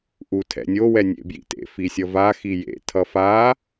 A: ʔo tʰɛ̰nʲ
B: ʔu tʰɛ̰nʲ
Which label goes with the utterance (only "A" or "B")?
B